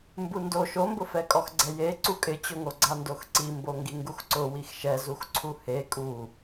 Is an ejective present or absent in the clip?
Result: present